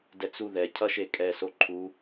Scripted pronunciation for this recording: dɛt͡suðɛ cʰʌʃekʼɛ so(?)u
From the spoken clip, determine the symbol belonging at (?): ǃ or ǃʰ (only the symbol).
ǃʰ